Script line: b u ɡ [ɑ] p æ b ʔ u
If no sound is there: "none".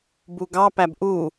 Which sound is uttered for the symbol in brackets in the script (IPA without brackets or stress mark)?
ɑ